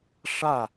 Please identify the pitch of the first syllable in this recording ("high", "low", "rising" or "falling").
falling